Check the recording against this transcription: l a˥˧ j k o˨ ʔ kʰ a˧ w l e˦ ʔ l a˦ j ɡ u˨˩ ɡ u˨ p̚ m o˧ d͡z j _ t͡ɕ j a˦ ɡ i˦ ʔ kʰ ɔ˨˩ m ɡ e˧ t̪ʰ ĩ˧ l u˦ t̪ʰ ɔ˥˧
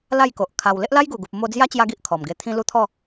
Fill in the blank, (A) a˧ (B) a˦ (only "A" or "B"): B